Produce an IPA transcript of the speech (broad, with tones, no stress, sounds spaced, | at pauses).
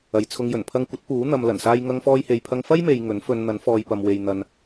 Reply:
ɐ˨ j t͡sʰ ʊ˧ ŋ j ɵ˨˩ n pʰ ɐ˧ ŋ kʷ ɐ˨˥ t̚ p uː˨˥ n̪ ɐ˨ m l ɐ˨˩ n s aː˧ j ŋ ɐ˧ ŋ f ɔː˧ j h e˨ j pʰ ɐ˧ ŋ f ɐ˥ j m e˨ j ŋ ɵ˨˥ n f ɵ˧ n n̪ ɐ˨˥ n f ɔː˨ j p ɐ˨ m w e˨ j n̪ ɐ˨ n